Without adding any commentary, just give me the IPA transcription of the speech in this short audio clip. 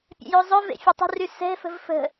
pʲɛ̰jøzˤœvḛ fʲatˤə̤ry sɛ̤fə̤v fə̤

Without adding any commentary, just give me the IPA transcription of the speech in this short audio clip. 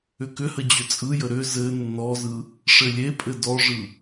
ʏkʏhə d͡ʑʏt͡sʼɯjə ɾʏ zɘ nːɔzɯ | ʂɘlʲepʼɘ dɔʐɯ

